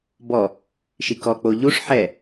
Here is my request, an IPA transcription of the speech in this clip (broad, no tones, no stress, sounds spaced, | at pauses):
b ɔ | ʃ i k ɔ k͡p o ʎ u ʂ ħ ɛ